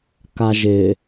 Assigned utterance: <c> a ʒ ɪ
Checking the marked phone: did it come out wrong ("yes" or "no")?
yes